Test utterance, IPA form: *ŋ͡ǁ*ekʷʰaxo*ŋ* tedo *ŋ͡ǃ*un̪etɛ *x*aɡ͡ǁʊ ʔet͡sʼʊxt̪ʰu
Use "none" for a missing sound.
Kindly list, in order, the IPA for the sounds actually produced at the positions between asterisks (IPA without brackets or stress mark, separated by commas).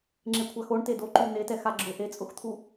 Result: ŋ͡ǁ, ɳ, ǃ, x